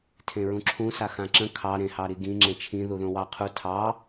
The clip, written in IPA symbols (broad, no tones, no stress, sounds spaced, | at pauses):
tʰ ẽ ɹ ũ ǁʰ ũ s a x ã ǁ ə̃ kʰ ɑ ɾ ẽ h ɑ ɾ i ɡ ĩ ŋ͡ǁ ẽ t͡ʃʰ ĩ ð u ð õ w ɑ qʰ u tʰ ɑ